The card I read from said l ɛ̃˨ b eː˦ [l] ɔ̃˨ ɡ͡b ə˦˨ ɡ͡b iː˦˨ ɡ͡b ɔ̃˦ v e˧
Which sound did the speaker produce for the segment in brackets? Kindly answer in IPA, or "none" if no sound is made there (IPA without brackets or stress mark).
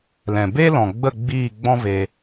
l